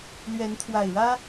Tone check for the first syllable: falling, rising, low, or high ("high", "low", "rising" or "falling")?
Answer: rising